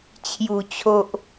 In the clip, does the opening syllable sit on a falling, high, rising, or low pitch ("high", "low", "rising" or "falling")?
low